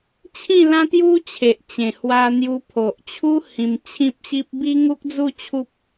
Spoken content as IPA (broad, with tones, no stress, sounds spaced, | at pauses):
t͡ɕʰ ĩ˥˧ l ã˦ t̪ j u˦ t͡ɕʰ e˨ ʔ t͡ɕ ẽ˨˩ h w a˧ n̪ j u˧ pʰ o˨ ʔ t͡ɕʰ u˦ h ĩ˧ m t͡ɕʰ ĩ˦ p̚ ɕ i˦ p̚ b i˦ ŋ u˦ k̚ d͡z u˥˧ t͡ɕʰ u˦ p̚